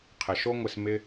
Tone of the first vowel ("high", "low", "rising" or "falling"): low